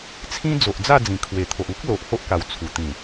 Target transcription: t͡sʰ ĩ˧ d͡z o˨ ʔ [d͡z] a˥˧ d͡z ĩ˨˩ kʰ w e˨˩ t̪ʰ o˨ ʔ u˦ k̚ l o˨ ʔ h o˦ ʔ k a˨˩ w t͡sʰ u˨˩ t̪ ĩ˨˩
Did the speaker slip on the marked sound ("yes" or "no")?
no